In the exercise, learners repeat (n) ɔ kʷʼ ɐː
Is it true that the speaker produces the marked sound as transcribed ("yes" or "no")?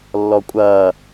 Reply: no